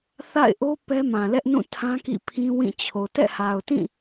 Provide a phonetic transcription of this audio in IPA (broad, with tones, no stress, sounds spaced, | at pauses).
θ a̰˦˨ ɪ̯ ʔ o˦ p ɛ˦ m ã˨ l ɛ˦ ʔ n ũ˦˨ tʰ ã˦ k ḭ˦˨ pʰ ĩ˦ w ĩ˦˨ t͡ɕʰ o˨ t ɛ̰˦˨ h a˨ ʊ̯ t ĩ˦˨